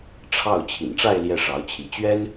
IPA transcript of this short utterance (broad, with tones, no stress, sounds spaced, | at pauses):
ʈ͡ʂʰ ɑ˥˩ ʊ̯ t͡ɕʰ ḭ˨˩ n ʈ͡ʂ a˥˧ ɪ̯ l j ɛ˥˩ ʂ ɑ˧˥ ʊ̯ t͡ɕʰ i˧˥ t͡ɕ ɥ ɛ˥ n